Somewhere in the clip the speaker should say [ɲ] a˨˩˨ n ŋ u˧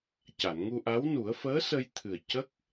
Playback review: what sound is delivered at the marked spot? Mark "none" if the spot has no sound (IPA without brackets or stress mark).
c